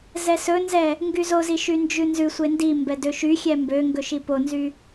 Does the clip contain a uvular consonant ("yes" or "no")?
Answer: no